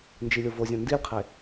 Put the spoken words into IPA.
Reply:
n d͡ʒ i lʲ o v o zʲ õ n d i lʲ qʰ e

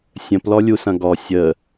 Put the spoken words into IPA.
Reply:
sʲ ə̃ p l ɔ lʲ u s ɐ̃ ɡ ɔ sʲ ə

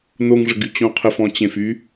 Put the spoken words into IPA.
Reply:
n o ŋ ʐ ə ɡ y t͡ɕ õ qʰ ə f ɔ̃ t͡ɕ ẽ f y

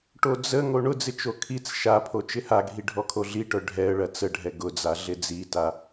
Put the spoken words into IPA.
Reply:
ʈ o d͡z ə ŋ o ɳ ʊ d͡z ɪ t͡ʃ o kʰ i t͡s ʃ a pʰ o t͡ʃ ɪ h a ɡʱ i ɖʱ ɔ kʰ o ɮ i ʈ œ ɖʱ ɛ ə̯ ɭ ɐ t͡s ə ɖʱ ɛ ɡ ʊ d͡z a ɮ ɪ d͡z i t a

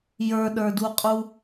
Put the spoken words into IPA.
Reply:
j ə˞ ɗ ə˞ d u qʼ u

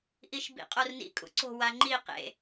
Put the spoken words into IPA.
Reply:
ʔ i ʃ b ḭ qʼ o r n ḭ kʼ ṵ ǀ o̤ w a ŋ͡ǃ i q ḛ

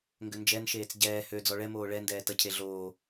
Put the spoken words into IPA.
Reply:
ŋ ɡ ø n d͡ʒ ɛ n ʃ eː t͡s ɟ ɛː h ø d͡z ɔ ɭ ɛ m oː ɭ ɛ n d ɛː t ɐ cʰ e ɮ oː

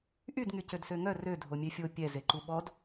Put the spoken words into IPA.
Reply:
ʔ y d ŋ y c ø d s ø ŋ œ r ø dʱ o mʲ e fʲ o pʲ ɛ z e ǃ u ɓ ɔ d

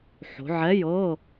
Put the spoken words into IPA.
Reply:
ħ o̤˨˦ ʕ ɛ˧˥˧ j ɤ˧˥˧

